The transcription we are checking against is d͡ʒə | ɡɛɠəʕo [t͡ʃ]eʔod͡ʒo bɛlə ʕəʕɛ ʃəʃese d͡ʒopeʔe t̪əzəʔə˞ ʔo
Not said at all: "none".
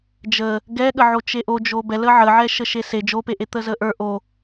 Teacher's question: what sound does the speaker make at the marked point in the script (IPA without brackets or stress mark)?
t͡ʃ